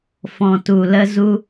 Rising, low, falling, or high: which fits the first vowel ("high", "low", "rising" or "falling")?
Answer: low